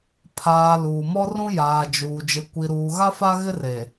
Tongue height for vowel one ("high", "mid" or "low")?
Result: low